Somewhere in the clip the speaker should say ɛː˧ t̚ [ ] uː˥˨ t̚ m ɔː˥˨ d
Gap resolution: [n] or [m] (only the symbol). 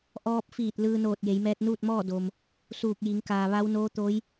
n